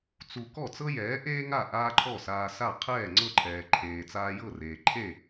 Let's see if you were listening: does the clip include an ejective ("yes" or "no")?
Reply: no